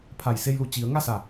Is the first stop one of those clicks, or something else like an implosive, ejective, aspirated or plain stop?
aspirated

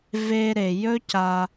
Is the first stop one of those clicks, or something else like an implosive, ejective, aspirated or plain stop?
plain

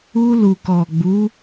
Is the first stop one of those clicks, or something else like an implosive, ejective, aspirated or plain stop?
plain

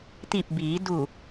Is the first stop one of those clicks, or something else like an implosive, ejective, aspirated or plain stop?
plain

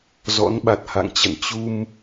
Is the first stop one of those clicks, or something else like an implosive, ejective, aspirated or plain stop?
implosive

